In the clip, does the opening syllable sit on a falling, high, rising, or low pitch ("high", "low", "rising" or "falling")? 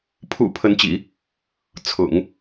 low